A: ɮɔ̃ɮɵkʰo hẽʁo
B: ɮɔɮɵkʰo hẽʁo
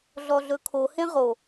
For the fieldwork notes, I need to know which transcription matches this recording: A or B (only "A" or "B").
B